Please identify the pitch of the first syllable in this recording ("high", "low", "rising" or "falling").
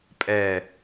low